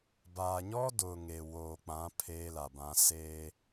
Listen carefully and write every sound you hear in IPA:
baː˨ɲɔ˦dʊ˨ ŋe˨ woː˨k͡pã˨˦ pʰeː˦la˨bã˦ se˦

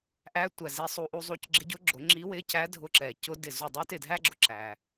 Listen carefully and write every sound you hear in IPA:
ʔæ˧˥tʷæ˨˩ zi˧sˤu˧ ʔu˧zˤu˧c ɡ͡ǁɪ˧˥ɟʊ˧˥ɡ͡ǁʊ˨˩˦ ŋ͡ǁi˧˥wɪ˧˥cæ˧˥ dʱʊ˧ǁɛ˨˩ cʊ˥dɪ˥˩ zu˥˩ dˤə˥y̯tɪ˥˩dʱæ˥ɡ͡ǁʊ˧ ǁæ˧

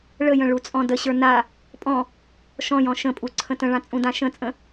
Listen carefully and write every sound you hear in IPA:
ɭəjə̃ ɭut͡sʼɔ̃dəɕə˞ na | pʼɔ̃ | ʃɔ̃jɔ̃ ʃə̃pʼu ǀʰə̃tə̃ɭã t͡sʼũdãʃə̃t͡sʼə̃

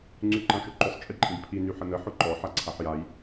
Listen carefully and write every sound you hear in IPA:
ŋ͡ǀyǃãʃʏǃʊsˤ t͡ʃʼiǃʼĩbpʰi nyħənə ħʊǃɔ ħaǀʰaħjaj

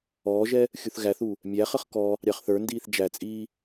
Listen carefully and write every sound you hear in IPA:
ɔːʒɛ | xʲuθɣæθu | mʲæχəχ kɔ | ɾʲɑχθə˞ndiːθ d͡ʒæt͡sʼiː

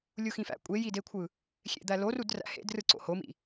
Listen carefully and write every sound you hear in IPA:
lʲuxĩfæ̰ kʷʼejidekʷʰɯ | xʲḛd̪ælorud ræ̰hḛd rɯǀo̰homḭ

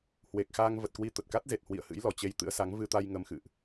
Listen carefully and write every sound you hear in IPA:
hwe˨˩k̚xaː˧ŋvə˨˩t̚kwi˧ t̪ə˨˩t̚ka˦˥t̚ze˨˩t̚hwḭ˧˨ə̯ hɨ̰˧˥jlɔ˧˩t͡ɕe˧j t̪ɨ̰˧˥ə̯sa˨˦ŋ vɨ˧t̪a˧j ŋə˧mxɨ̰˧˨ʔ

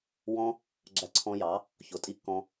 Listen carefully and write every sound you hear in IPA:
wɔ̃˧ | ɡ͡ǁæ˧ǀʰɔ̃˧jɑ˩˥ | çʊ˩˥tʼi˧kːɔ̃˧

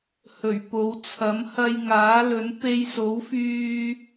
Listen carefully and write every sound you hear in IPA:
hɵ˨˩ɥpo˨˧w t͡sʰɐ˨˥mhɐ˧j ŋaː˨˥lɵ˨˥n pe˧jso˨˥wfyː˧

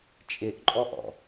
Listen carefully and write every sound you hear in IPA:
t͡ʃʼɪʔǃʼɔʔɔ̰

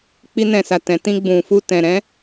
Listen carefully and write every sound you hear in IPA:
k͡pi˧nɛ̃˨sa˨ tɛ̃˨ tĩ˧ ɡ͡bũ˨fu˧tɛ̃˨ ɾɛ̃˨˦

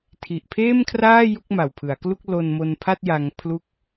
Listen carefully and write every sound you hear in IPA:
tʰi˨˩ʔpʰeː˥˩mkʰraː˥˩ ju˥˩k̚ma˨˩wpʰɯ˩˦a̯klu˥˩k̚ lo˧n mo˧npʰa˥˩t̚ja˧ŋ pʰlu˥˩k̚

